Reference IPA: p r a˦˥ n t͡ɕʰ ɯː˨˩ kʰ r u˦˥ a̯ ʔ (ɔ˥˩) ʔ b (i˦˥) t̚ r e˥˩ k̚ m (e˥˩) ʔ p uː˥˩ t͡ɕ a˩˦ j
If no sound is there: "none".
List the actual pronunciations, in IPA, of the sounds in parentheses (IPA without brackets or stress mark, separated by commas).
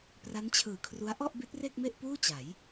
ɔ˥˩, i˦˥, e˥˩